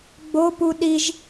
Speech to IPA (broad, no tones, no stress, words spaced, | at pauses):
ɡ͡bopu ɗiʒ